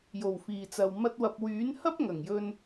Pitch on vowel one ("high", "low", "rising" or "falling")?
low